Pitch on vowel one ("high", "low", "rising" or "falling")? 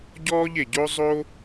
high